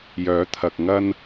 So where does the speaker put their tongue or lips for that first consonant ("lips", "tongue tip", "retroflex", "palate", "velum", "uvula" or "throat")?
palate